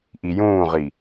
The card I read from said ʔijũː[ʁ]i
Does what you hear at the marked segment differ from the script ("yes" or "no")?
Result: no